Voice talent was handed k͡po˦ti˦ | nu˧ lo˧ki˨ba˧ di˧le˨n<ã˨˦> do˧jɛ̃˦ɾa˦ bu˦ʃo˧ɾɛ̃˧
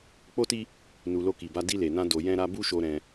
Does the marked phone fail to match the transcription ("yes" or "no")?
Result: yes